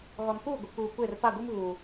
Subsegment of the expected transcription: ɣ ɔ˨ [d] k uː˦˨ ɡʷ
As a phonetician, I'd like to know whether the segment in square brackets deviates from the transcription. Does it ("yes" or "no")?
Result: yes